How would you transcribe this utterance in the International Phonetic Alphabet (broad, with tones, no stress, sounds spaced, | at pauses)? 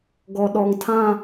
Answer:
ɡ ɔ˨ ɗ ɔ˨ ŋ tʰ ã˦˨